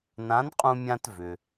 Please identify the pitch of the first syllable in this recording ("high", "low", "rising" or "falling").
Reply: rising